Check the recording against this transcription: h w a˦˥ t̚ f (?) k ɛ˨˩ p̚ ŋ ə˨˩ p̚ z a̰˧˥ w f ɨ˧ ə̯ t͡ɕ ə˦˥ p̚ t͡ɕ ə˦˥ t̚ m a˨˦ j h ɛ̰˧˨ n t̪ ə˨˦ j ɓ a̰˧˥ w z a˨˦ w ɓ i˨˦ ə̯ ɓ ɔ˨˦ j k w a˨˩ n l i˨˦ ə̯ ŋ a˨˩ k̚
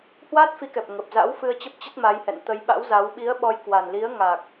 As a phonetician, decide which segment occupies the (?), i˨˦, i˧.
i˨˦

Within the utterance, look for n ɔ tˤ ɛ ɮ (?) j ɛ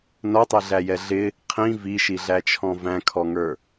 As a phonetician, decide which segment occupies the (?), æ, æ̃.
æ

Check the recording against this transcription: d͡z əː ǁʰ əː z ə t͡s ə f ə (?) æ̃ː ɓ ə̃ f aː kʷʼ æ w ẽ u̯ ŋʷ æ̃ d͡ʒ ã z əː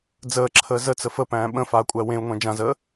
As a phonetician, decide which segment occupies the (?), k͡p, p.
p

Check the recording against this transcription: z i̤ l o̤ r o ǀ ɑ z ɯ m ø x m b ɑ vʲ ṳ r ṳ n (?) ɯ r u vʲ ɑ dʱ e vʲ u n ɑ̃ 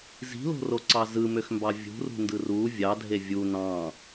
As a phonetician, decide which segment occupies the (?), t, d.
d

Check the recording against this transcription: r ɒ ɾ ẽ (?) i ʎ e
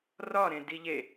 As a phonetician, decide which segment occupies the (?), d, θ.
d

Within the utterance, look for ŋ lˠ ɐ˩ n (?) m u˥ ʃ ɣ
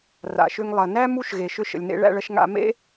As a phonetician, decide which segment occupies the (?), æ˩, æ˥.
æ˥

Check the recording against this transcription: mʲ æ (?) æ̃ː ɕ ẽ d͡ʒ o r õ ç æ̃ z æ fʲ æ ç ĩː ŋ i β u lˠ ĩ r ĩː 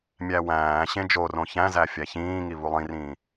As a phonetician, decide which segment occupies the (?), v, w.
w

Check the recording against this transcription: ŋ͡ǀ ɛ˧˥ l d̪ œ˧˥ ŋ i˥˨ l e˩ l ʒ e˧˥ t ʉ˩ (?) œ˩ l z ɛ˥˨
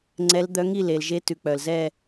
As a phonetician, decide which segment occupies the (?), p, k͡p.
k͡p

